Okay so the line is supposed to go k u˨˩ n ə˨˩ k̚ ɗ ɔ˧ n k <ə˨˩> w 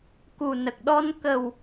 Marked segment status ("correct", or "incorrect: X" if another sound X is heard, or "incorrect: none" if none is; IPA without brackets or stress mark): correct